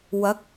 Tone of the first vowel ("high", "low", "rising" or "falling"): rising